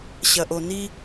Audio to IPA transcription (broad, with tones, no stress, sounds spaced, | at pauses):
ɕ ɐ˨ ʔ o˨ n i˧